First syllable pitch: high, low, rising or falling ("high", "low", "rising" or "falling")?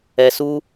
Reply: high